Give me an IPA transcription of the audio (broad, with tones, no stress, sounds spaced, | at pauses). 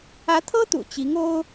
ä˧˥ t̪ʰ ɤ˥ t̪ ṵ˨˩ t͡ɕ i˧˥ ŋ o˥ ʊ̯